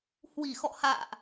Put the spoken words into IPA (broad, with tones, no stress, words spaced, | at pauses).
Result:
hwi˧˩xɔ̰˧˨ ha̰ː˧˨ʔ